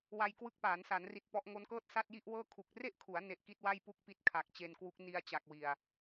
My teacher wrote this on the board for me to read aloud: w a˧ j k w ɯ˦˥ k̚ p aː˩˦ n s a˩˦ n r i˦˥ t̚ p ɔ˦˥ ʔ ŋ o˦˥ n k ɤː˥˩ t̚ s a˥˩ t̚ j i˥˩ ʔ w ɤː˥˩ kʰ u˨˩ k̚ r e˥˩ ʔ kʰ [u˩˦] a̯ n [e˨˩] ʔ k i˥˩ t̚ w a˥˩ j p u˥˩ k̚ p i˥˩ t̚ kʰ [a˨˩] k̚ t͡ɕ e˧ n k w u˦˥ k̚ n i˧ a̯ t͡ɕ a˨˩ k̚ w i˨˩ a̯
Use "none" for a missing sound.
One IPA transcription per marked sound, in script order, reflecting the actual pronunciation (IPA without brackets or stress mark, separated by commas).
u˩˦, e˦˥, a˨˩